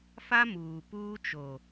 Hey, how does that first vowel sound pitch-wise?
high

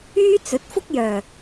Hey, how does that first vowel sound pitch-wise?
high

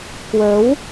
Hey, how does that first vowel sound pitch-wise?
rising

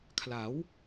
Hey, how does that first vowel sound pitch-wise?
rising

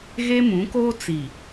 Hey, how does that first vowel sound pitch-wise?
high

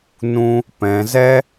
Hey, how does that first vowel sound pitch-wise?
high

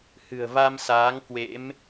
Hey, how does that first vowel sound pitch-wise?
low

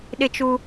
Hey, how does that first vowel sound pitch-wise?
high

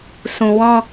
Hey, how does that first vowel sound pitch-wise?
low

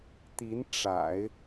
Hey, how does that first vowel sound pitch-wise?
rising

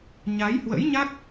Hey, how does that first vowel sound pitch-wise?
rising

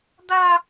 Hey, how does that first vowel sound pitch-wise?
high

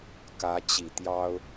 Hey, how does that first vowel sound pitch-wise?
rising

